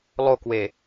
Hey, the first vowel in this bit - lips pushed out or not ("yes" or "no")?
yes